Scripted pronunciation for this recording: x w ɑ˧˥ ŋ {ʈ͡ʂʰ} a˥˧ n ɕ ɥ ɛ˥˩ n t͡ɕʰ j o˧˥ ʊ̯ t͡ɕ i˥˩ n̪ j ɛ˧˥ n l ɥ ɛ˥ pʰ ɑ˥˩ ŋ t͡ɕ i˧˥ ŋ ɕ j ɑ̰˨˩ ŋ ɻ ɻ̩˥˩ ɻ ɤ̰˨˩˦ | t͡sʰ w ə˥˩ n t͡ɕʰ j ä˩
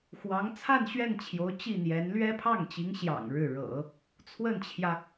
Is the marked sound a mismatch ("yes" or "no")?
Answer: yes